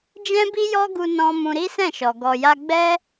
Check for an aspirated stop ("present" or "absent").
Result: absent